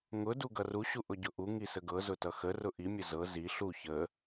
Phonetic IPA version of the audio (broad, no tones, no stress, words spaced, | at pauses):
ŋʊ duɡʌru ɕuʔʊɟʊʔu ŋisəɡɤ zʊtʌxə rʊʔi mʲəzɤ zi ɬu çə